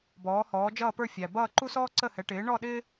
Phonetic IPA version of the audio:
bɔː˩˥hɔː˩˥ d͡ʒʌː˥˩pə˞˥˩fʲæ˩ bʌː˥˩ǃu˥s ɔː˥ǀə˥˩hɛ˩˥ ʈɪː˩˥ɳɔ˥˩ ɗɪ˥

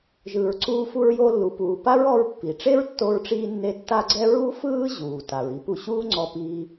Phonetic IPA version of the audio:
ʒɯː˩ɹǀuː˧ fu˧ɹjo˧ lːu˩ puː˩pa˥ɹɔ˧ɹ pːi˩ ʈ͡ʂe˥ɹtːo˧ɹʈ͡ʂiː˧nːe˧ tːa˥ɡ͡ǀɛ˥ ɹu˥fɯː˥ ʑuː˩ta˩ɹ i˧pu˧ɕuː˥ŋ͡ǀɔ˧ piː˧

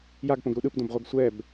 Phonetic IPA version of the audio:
jaɡpõɡɾu ɗɯpdõbʁʷɤɡ sʷɛb

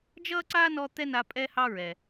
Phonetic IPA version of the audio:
d͡ʒʌː˥ǀa˥nɔ˦ t̪ɛ˥na˦ pʼɛ˦hɑ˦ ɹɛ˨

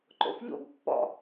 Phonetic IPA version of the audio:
ǃo̰fʎo̰ɡ pːɔ̰

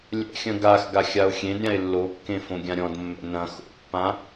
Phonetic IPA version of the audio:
lʲɛ̰xʲɐ̃ ɡax ɡaxʲao̯xʲẽdɾʲãe̯ lːokːẽ fõɡʲãɾʲɔ̃dmːɛ̰ nɐ̃ xo̰pːã

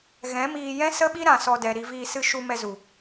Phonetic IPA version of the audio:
ɣɛ̃˨˦miː˧ jɛ̃˦sə˦ɓi˦ ɾã˨sɔ˧dɛ˨ ɾi˧viː˧sɨ˦ ʃu˧mɛ˧zu˨

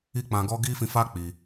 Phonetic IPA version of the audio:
i˦k͡pã˧ɡɔ˦ ɡi˦fĩ˧ fa˦ k͡pi˧

